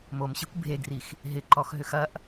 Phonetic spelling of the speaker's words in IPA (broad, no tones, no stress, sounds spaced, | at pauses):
m o m ɕ i kʷ bʱ e ɡ r i x | ɦ ɪ ǃ ɔ x ɦ ʏ x ɐ ʔ